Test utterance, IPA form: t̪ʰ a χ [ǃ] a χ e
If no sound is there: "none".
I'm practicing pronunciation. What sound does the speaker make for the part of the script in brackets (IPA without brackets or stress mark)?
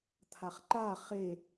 ǃ